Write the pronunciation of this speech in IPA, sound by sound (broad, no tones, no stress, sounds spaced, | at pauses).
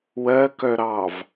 w ɜ k œ ɾ ɑ v